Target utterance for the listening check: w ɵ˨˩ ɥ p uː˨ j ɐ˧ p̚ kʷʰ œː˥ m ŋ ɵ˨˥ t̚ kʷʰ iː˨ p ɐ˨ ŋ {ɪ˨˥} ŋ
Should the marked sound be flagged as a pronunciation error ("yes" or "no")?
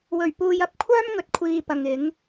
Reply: no